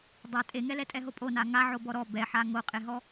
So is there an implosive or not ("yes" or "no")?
no